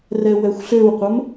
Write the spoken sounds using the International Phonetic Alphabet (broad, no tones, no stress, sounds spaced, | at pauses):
r ɛ w ɛ xʷ ɬ ø w qʷ ə m